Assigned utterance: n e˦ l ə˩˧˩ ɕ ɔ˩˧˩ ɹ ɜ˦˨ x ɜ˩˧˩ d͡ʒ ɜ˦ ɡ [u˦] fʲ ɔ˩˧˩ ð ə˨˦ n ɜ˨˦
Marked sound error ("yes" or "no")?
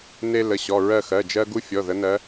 no